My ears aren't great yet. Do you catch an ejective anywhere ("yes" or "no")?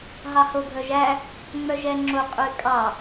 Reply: yes